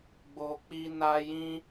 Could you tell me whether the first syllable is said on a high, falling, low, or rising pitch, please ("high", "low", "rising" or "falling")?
low